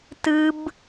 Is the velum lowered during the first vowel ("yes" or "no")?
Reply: no